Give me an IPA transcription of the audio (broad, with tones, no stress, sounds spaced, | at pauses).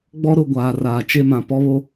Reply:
ɡ͡b ɔ˦ ɾ ʊ˦˨ ɡʷ aː˨ r aː˨ t͡ʃ e˦˨ m ã˨ p ɔ˦ β o˦